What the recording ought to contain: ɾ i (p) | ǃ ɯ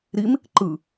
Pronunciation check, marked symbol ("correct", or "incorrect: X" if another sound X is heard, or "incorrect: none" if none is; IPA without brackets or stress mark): incorrect: m